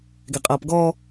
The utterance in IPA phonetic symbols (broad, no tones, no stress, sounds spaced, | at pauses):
ɡ ɛ qʼ ʌː p ɡ ɔ